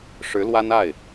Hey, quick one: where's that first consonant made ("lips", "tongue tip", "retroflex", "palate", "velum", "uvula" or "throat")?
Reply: retroflex